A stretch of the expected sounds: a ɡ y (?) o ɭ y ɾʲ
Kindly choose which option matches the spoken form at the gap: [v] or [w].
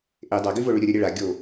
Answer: v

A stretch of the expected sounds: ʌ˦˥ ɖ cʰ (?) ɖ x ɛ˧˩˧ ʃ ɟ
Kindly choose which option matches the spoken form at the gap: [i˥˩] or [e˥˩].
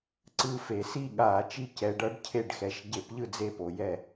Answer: e˥˩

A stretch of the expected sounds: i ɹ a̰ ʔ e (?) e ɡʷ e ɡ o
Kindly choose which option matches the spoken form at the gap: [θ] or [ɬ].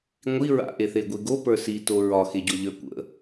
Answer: θ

